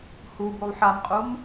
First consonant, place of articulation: glottal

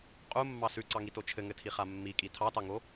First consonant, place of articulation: uvular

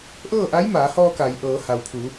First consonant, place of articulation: glottal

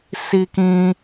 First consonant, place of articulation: alveolar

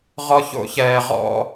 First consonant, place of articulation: uvular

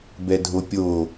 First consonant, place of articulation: labial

